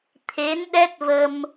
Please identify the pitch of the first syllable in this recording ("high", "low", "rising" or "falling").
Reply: rising